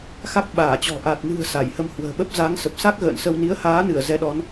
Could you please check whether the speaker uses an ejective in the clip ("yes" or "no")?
no